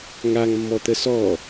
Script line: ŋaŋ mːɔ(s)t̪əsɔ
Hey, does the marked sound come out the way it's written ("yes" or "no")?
no